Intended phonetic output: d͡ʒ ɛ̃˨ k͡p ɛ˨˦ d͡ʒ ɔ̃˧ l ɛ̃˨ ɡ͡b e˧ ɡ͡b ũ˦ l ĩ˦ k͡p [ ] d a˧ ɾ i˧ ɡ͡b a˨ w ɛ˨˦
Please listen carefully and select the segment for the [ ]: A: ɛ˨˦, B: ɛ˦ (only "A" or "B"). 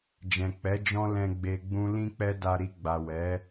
B